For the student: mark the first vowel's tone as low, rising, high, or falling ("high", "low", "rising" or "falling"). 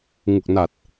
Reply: low